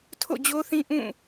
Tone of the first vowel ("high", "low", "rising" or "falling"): falling